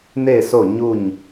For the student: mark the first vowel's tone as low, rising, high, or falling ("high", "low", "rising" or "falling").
falling